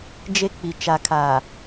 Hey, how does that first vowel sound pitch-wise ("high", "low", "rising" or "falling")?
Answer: high